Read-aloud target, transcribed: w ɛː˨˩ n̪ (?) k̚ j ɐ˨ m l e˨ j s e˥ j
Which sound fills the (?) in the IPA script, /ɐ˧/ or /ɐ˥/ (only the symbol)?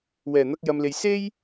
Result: ɐ˧